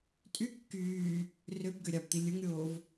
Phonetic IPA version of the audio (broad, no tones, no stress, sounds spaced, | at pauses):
tʼ y kː yː | r ø b ɡ ø ɾʲ ɑ b t̪ i lʲ ɯ ŋ ɾʲ oː v